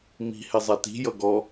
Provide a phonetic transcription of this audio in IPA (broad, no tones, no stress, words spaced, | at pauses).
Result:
mi̤ hɛzˤati̤ jʌɡɔ